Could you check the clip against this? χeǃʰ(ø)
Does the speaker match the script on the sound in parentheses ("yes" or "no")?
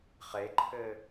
no